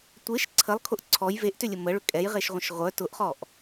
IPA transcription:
tʷ e ʃ ǀʰ ə lˠ kʰ ʊ ʔ ǀʰ ɔ j v e ʔ t ʏ lʲ ə m ə ɭ ʏ kʼ ɛ j ʁ e ʃ ʁʷ ə̃ ʃ ʁʷ œ t ʊ ʔ χ ɔ ʔ

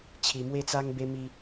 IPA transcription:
t͡ɕʰ i˧ m w e˦ t͡s a˦ ŋ b e˦ m i˦

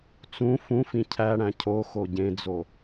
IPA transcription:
t͡s ũ f ũ f ĩ cʰ æ ɽ æ̃ cʰ o x o ɟ ẽ d͡z o

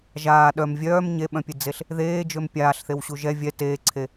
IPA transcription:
ʒ aː ɗ œ m vʲ œː m ɲ e ɓ œ̃ pʲ e d͡z e ɬ | ð eː d͡ʒ ø m pʲ aː ɬ θ e w ɕ u ʒ ɛ vʲ ɛ t eː ǀʰ e

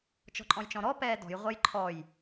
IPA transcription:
t͡ʃ ɔ̤ ǃʼ ɔ̃ j t͡ʃ ɔ̃ ɾ ɔ p ɛː d ɔ̤ j ʁʷ ʌ j ǃʰ ɔ j

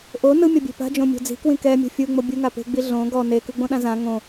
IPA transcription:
ʔ o n ɯ mʲ ɔ bʲ e̤ p a̤ d͡ʒ õ mʲ o̤ d͡z i̤ k w ĩ k ɛ mʲ o̤ fʲ ɯ ŋ͡m o bʲ u ŋ a p e̤ ɡ͡b i ɮ õ ɡ ɔ n e k ɯ ɡ͡b õ ɗ ã z ã ŋ õ

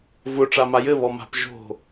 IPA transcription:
v ʊ ʈ͡ʂ a m a j ɘ β ɔ m a̤ p ʒ o̤

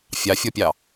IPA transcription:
fʲ ɑ fʲ ɔ pʲ ɑ

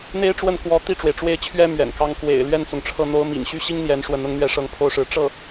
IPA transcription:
n̪ e˥ ɪ̯ ʈ͡ʂ w ə˥˩ n k w ɔ˧˥ t̪ i˥˩ ʈ͡ʂ w e˩ ɪ̯ ʈ͡ʂ w e˥˩ ɪ̯ t͡ɕʰ ɥ ɛ˥ m ɥ ɛ̰˨˩ n k ɑ˥ ŋ k w ḛ˨˩ ɪ̯ l ɥ ɛ˥˩ n t͡s ʊ˩ ŋ ʈ͡ʂʰ ɤ˥˩ n̪ o˥ ʊ̯ m ḭ˨˩ ŋ ɕ y˥ ɕ i˥ ŋ n̪ j ɛ˧˥ n ʂ w ə˧˥ n ʊ˧˥ ŋ n̪ ɥ ɛ˥˧ ʂ ɤ˥˩ ŋ pʰ o˥ ʊ̯ ʂ ɻ̩˧˥ ʈ͡ʂ ɤ˥˩

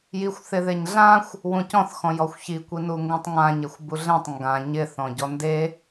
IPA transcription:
j i xʷ θ ɪ ð e ɲ ɮ ã xʷ | w ũ c ɔ̃ θ x ɔ̃ j ɔ xʷ ç i kʷ i n u ŋ ɡ ũ tˤ ŋ ã ɲ e xʷ b u ɮ ɛ̃ tˤ ŋ ɡ ã ɲ ɪ θ ɔ̃ ɟ ɔ n d e

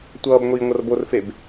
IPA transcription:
tʷ ʌː b ŋʷ iː ŋʷ ʌ r b o r f e b

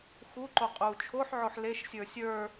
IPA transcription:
x u ǃ o qʼ uː t͡ʃʰ o ħ ʕ o ħ l e ʃ sʲ ə˞ sʲ ə˞

